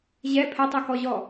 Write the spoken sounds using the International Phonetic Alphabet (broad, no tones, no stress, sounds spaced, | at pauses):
ʑ ɛ pʰ ɛ tˤ u k ɔ ʑ ɔ